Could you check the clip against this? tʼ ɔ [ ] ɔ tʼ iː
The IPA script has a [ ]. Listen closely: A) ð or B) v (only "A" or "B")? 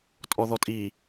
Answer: A